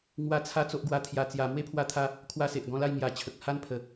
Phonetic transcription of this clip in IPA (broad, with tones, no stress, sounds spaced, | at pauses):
ŋ w a˧ t͡sʰ a˧ t͡s o˦ ʔ ɡ w a˦ t̪ʰ j a˧ t͡s j a˧ m w e˦ pʰ w a˧ t̪ʰ a˧ | kʰ w a˦ s e˨ ʔ ɡ ɔ̃˦ l a˥˧ j ŋ j a˨˩ t͡ɕʰ ə˨ k̚ h a˥˧ n pʰ ə˨˩